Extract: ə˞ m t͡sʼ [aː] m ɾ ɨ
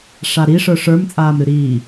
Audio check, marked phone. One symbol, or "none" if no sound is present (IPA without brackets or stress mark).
aː